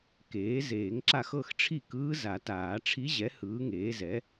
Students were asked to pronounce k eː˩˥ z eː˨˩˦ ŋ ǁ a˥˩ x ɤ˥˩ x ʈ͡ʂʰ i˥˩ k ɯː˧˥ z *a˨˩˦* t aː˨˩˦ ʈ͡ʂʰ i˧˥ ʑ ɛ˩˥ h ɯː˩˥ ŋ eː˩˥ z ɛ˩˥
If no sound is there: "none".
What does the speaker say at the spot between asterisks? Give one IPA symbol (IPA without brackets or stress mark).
a˨˩˦